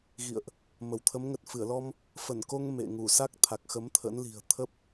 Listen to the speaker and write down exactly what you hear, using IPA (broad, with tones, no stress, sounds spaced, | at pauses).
ɣ ḭ˧˨ ə̯ ʔ | m ə˧˩ w t̪ʰ ə˨˦ m ŋ ə˨˩ t̚ f ɨ˧˩ ə̯ l ɔ˧ m | f ə˧˩ n k o˧ ŋ m ḛ˧˨ ŋ u˧˩ s a˦˥ k̚ t̪ʰ a˨˩ k̚ x ə˨˦ m t̪ʰ ə̰˧˥ n l i̤˨˩ ə̯ t̪ʰ ə˦˥ p̚